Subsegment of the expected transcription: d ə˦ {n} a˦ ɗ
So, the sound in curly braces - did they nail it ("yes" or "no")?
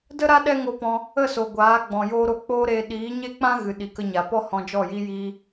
no